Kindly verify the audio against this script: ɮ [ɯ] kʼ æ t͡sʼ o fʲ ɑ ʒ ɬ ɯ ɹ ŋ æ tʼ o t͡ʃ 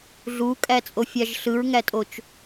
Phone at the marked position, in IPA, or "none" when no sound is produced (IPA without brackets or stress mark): u